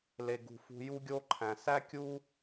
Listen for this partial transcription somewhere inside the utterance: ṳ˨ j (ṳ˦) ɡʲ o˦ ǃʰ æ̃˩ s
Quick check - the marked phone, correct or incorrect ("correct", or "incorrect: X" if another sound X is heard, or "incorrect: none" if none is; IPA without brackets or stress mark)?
incorrect: u˦